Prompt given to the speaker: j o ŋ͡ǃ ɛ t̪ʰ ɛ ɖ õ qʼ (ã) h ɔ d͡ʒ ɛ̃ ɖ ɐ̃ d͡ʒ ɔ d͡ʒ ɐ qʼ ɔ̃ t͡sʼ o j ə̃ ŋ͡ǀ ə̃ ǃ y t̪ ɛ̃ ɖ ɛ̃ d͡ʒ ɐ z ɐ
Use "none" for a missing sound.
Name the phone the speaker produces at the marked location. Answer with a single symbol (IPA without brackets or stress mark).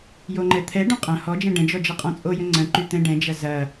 ɐ̃